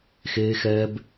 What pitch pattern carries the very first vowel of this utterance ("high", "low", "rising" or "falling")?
high